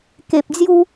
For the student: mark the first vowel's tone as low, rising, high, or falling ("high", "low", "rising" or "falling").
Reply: low